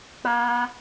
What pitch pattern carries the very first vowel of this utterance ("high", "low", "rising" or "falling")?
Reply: high